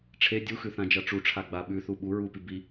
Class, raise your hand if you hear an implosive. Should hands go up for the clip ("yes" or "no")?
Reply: yes